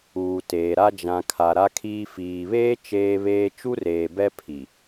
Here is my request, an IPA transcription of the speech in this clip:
uː˨ t eː˨ ɾ a˦ d͡ʒ ã˨ kʰ a˨ ɾ a˦ kʰ iː˦ f iː˨ β eː˦ t͡ʃ eː˦ β eː˦ t͡ʃ u˦ r eː˨ b ɛ˦ pʰ i˨

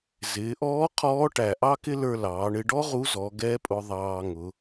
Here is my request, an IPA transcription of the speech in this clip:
z ɪː˩˧ ʔ ɔː˧˥ qʰ ɔː˧˥ ʈ æ˩ ʔ ɑ˥ k ɪ˥ l ə˞˧ l ɑː˩˧ ɳ ɪ˧ ɖ ɔ˥ ʁ u˧˥ z ɔ˩˧ ɡ ɛ˧˥ pʼ ʊ˧ ðˤ ɑː˧ ŋ ʊ˩˧

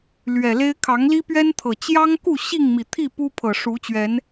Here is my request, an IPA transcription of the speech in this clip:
l ɥ ɛ˨˩ l e˦ ɪ̯ kʰ ɑ˨˦ ŋ l i˦ p ɥ ɛ˦ n t̪ʰ ɤ˨˩ t͡ɕ j ɑ˦ ŋ k u˥˨ ɕ i˥˨ ŋ m i˨˩ t̪ʰ i˥˨ p u˦ pʰ ɤ˨˩ ʂ u˨˦ t͡ɕ ɥ ɛ˨˦ n

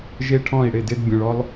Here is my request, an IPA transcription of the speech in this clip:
ʒ e˦ ʈʰ ɔ̃˦˨ i̯ ɽ ɪ˦˨ d ɪ˦ d bʲ õ˧ ɭ ɔ˦ lˠ

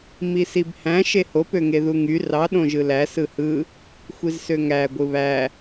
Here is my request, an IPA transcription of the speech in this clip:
m i s i b h æ̃ ʃ e h o p ø ŋ e ð u ŋ y r ɑ ɗ õ ʒ ɯ l æ s ɯ h ɯ | xʷ i z s ø ŋ æ ɡʷ ɯ β æ

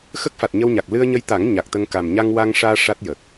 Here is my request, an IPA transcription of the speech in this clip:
x ə˦˥ k̚ f a˨˩ t̚ ɲ ə˧ w ɲ a˨˩ k̚ l ɨ˧ ə̯ ɲ ə˧ j t̪ a˨˩˦ ŋ ɲ a˨˩ k̚ t̪ ə˧ ŋ k a˨˩ m ɲ a˧ ŋ w a˧ ŋ ʂ aː˧ ʂ a˦˥ t̚ j ə˨˩ k̚

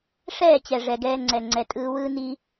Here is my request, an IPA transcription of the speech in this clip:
ʂ ɛː˦˨ t͡ɕ ɛ˨ ʐ ɛ˨ ɡ ɛː˧ ŋ͡ǀ ɛ˨ ŋ͡ǀ ɛ˨ tʼ ɯː˧ w ɯː˦ n i˦

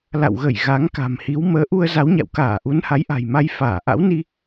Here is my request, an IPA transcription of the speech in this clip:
l a̰˧˨ w ɣ ə˧˩ j ɣ a˨˦ ŋ k a̤˨˩ m h i˨˦ w m əː˨˦ ʔ u˧ ə̯ z a˨˦ w ɲ a̰˧˨ w k aː˧˩ ʔ u˨˦ n h a˨˦ j ʔ a̤˨˩ j m a˧ j f aː˧˩ ʔ a̰˧˥ w n i˧

